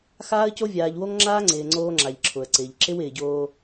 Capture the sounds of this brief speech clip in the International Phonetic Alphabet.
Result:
x aː˦ ə̯ c o˦ vʲ aː˨ ʎ w o˦ ŋ ŋ͡ǁ aː˦ ŋ͡ǀ ɪː˨ ŋ͡ǀ oː˦ ŋ͡ǁ a˨ ʎ ǁʰ ʊ˨ ə̯ ǀ ɪː˨ ʎ ǁ ɪ˦ w ɪː˨ ɟ oː˦

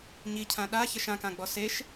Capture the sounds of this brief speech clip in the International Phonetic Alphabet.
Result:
ɲ i cʰ ã ɗ a ç ɐ ʃ ã k ã ɡ͡b ɔ s e ʃ

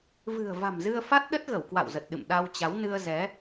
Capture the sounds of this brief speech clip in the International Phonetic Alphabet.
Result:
v ɨ̤˨˩ ə̯ v a̤˨˩ m z ɨ˧ ə̯ f a˦˥ t̚ ɗ ə˦˥ t̚ ɣ ə˧˩ w k w a̰˧˨ w z ə˨˩ t̚ ɗ ɨ̰˧˨ m ɗ a˧ w t͡ɕ a˨˦ w n ɨ˧ ə̯ z ɛ˨˦

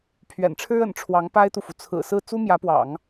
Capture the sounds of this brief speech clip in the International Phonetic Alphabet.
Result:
pʰ ɥ ɛ̰˨˩ n ʈ͡ʂʰ ɻ̩˥ ə̰˨˩ n ʈ͡ʂʰ w ɑ˧˥ ŋ p a˥ ɪ̯ t̪ u˨ f u˩ t͡sʰ ɹ̩˨˩ s ɹ̩˥˩ t͡s u˥ m j ä˧˥ p w ɑ̰˨˩˦ ŋ

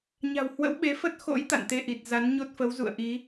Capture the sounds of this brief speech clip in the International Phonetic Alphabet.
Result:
ɲ a̤˨˩ w h w ə̰˧˥ w ɓ e˨˦ f ə˦˥ t̚ x o̰˧˥ j t̪ a̰˧˨ n t̪ e˧ ʔ i˨˩ t̚ z a˨˦ n ɲ o˦˥ t̚ f ə˨˦ w z ṵ˧˨ ə̯ ʔ i˨˦

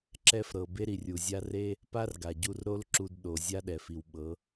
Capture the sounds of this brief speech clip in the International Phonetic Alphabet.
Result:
ǁ ɛ˧ f ɾ ɤ˨ b e˦ ɾ i˨ rʲ u˨ zʲ a˦ r e˦ | p a˦ r ɡ a˨ ɟ u˧ r ɾ o˦ l ǁ u˧ d ɗ o˨ zʲ a˦ ɗ ɛ˨ f i˨ w ɓ ɤ˨˦

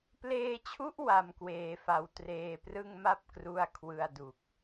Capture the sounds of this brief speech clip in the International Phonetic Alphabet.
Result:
p l eː˧ t͡ɕʰ u˦˥ ʔ w a˧ m k w eː˧ f a˧ w t r eː˧ p r ɯ˥˩ ŋ m a˥˩ p̚ k r u˥˩ a̯ kʰ w ɯ˧ a̯ d u˨˩ k̚

